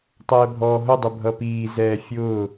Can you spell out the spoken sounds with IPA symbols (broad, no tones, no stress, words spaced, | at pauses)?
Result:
tˤɛːbʱɔːɦʊ dˤʊbʱʌpiː zɛːfʲʊː